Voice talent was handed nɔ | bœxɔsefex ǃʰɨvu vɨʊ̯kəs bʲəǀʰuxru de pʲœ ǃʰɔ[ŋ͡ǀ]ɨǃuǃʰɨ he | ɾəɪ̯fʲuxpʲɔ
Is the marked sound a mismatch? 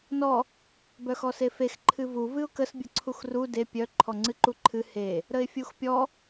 no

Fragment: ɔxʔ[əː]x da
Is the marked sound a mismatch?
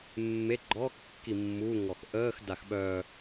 no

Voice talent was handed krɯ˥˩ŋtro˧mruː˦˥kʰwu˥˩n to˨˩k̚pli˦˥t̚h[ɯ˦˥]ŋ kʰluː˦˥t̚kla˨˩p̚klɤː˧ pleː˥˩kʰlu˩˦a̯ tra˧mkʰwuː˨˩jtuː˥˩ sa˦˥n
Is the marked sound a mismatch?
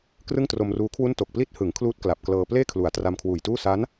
yes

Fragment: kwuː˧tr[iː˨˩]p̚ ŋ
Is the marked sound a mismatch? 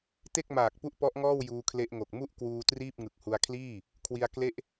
yes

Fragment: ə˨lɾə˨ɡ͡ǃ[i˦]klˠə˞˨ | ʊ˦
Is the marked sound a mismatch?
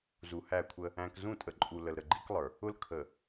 no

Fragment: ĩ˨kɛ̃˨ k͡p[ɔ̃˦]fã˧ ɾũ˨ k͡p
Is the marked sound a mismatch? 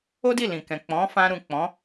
yes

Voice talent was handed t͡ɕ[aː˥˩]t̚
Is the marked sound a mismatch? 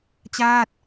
no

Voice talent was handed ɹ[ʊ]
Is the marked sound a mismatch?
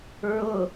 no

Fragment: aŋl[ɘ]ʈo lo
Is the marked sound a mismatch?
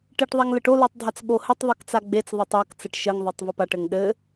no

